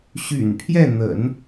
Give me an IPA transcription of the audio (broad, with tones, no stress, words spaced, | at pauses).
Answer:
ɕy̰˨˩npʰjɛ˥˩n̪ə̰˨˩˦n